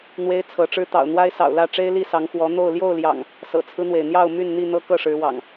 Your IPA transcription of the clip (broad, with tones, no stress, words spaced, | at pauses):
n̪we˦ɪ̯t͡sʰɤ˨˦ʈ͡ʂɻ̩˦ t̪ɑ̰˨˩ʊ̯n̪wa˦ɪ̯ sɑ̰˨˩ʊ̯lä˥˨ʈ͡ʂe˦ɪ̯ li˥˨sɑ˨˦ŋxwɔ˨˦ n̪o˥˨ʊ̯ ljo˥˨ʊ̯ljɑ̰˨˩ŋ | sɤ̰˨˩t͡sʰɹ̩˦n̪we˩ɪ̯n̪jɑ˥˨ʊ̯ my˥˨nn̪i˥˨n̪ɤ˦ kɤ˥˨ʂɻ̩˨˦wɑ̰˨˩ŋ